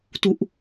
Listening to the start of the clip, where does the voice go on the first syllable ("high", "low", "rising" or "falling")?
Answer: low